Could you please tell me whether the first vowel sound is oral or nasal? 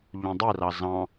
nasal